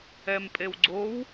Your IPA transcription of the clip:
ɛmpʼewɡ͡ǀow

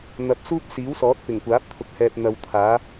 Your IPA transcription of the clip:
n̪ɐ˨p̚ suː˥p̚siː˨˥wsɔː˨˥t̚ pɪ˨˩ŋkʷaː˨˥p̚t̪ʰʊ˨k̚ hɛː˨p̚n̪ɐ˨w t̪ʰaː˨˥

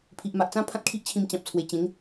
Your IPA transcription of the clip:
pʰi˨ʔma˨ʔt͡sã˦ pʰã˦t̚kʰi˦ʔt͡ɕʰĩ˧m t͡ɕã˨p̚t͡sʰwe˨˩ t͡ɕẽ˨˦ŋ

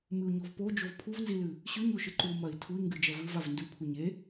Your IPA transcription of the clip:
mɨu̯ɲovpo d͡ʒovpʰuvnzilɨ | ɕʉɲoʃɨ ǃumɐi̯ tʰui̯ŋɡɨd͡ʒɐ vɨvav ndʉpʰu ɲe

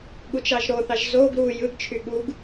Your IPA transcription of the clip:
ɠut͡ʃɑʒɾoθɑʒ zoɡ ɾu jɯɡt͡ʃʰy ɠuɡ

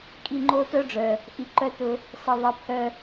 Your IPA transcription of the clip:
kʼi˦˨ŋ͡ǃo˦tœ˦ɖ͡ʐœ˨ | ʔi˧ǃœ˦tʊ˧ | sʌ˧ðˤʌ˧ pʰœ˦

